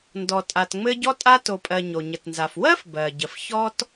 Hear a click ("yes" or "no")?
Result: no